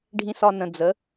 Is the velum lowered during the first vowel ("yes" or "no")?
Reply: yes